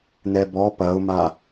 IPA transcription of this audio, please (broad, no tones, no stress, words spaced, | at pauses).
nɛbɔ pɐʊ̯ma